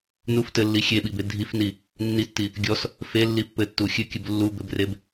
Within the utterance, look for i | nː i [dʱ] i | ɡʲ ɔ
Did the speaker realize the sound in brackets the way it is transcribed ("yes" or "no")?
no